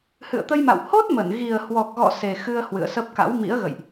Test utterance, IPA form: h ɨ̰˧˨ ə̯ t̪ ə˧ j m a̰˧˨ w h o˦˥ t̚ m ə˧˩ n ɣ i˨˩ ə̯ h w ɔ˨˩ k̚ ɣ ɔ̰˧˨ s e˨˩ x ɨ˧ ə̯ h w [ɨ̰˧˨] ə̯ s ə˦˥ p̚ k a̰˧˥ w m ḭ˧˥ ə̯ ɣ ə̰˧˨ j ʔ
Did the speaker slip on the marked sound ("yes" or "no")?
no